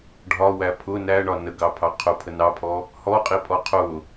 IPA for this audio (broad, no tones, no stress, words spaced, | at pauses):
ɖʱɒwæ pʰʊ næɳɒ nəɡɑpʰɑ qʰʊpʰə nɑpʰɔ | hɔqʼipʼɔ qʰʊ